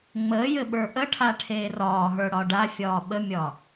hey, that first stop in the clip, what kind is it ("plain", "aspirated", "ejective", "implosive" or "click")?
implosive